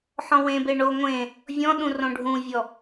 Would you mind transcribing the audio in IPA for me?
ħɔ̃wẽbe ɳo ŋʷẽ | vʲɔ̃ɗũ rõɖʱũvʲɔ

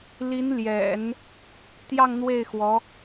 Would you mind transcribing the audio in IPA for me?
li˧˥nljɛ̰˨˩˦n | t̪jɑ˥˧ŋn̪we˥˩ɪ̯ xwɔ˧˥

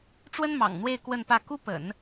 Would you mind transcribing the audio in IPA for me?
ʈ͡ʂwə˥nmɑ̰˨˩ŋn̪we˥˧ɪ̯ kwə˥˧npä˥˩ ku˥pə̰˨˩˦n

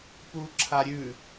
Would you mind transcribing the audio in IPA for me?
puǁʰaɾʲʉ

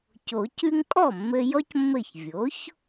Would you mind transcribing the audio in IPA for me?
co˨˩˦cʉ˥ŋ kʼɔ˥˩mːɘ˧ jɔ˥cmːɘ˥˩ç vʲo˩˥ç

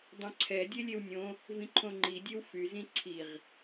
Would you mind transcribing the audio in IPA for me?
dˤõǀʰɛ dʲelʲewnʲõ | vĩǃʰõŋ͡ǃi dʲewfy zĩǀʰiʁ

